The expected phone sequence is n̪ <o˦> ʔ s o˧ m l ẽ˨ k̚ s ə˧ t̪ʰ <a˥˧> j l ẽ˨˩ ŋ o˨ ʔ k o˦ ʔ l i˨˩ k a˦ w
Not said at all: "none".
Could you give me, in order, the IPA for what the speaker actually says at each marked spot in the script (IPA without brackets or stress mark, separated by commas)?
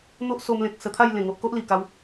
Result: o˦, a˥˧